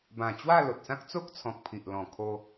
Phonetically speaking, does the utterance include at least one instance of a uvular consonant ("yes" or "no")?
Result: no